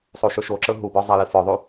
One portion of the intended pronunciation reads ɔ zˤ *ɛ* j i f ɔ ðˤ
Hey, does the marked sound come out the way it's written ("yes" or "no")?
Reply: yes